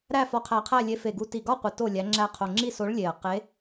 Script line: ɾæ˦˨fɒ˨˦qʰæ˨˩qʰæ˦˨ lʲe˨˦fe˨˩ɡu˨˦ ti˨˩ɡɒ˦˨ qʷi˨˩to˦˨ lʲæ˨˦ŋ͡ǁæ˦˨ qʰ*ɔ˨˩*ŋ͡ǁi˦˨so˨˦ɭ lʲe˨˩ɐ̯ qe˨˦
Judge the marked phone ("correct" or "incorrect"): incorrect